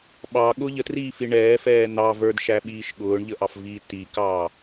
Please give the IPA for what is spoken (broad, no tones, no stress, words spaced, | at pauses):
ɓɑɠʊ ʎətriːfi ɳɛːfɛː n̪ɑ və˞dʃæɓiːʃ ɠʊːɳʎəʔɑfviː tikɑː